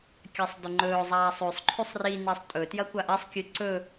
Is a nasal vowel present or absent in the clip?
absent